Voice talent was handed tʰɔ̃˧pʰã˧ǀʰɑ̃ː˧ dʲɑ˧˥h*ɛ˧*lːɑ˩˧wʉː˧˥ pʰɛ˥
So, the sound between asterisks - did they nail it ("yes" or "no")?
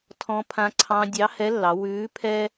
no